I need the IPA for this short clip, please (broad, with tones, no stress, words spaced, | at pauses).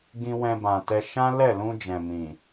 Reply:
ɡĩ˦ wɛ̃˧bã˨tɛ˧ ʃã˦lɛ˦˨lũ˧ d͡ʒɛ̃˨mĩ˨